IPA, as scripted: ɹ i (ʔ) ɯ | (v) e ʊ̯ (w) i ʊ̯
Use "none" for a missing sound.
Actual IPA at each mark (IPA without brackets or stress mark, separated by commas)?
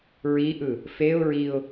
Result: ʔ, f, ɹ